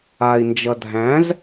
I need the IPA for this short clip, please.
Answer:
a i̯ n d͡ʒ ʌ dʱ æ̃ z

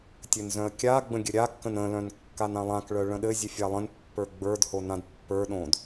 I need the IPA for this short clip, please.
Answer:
tʲ ɘ n z œ̃ ə̯ kʲ a ɡ͡b ə̃ ɡʲ ɘ ɾʲ a kː ə̃ n ə̃ l œ̃ n kː a n ã lˠ ã k ɭ œ ɭ ə̃ ɗ ɘ zʲ ʉ fʲ a lˠ ə̃ n pː ə˞ ɡ͡b ə˞ d h o n ã d pː ə˞ ɗ õ d

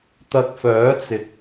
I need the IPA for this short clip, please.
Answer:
t̪ ɐ˧ k̚ f œː˨˥ t͡s ɪ˨ k̚

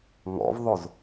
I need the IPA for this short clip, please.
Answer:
ŋ ɔ̰ v ðˤ o z

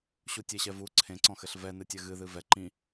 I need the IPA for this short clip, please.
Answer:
ɕ u tʲ e ɕ ɛ v u ǀʰ ẽ ǀ ɔ̃ x ɘ ɬ v ɛ n ɨ tʲ ɘ ɣ ɨ ð ɨ v ɛ ǃ ĩ

